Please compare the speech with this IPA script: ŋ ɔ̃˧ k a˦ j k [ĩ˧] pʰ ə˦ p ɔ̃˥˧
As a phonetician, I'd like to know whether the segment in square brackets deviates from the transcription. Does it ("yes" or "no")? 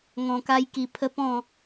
yes